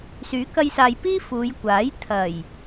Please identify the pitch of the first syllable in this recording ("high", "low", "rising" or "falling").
rising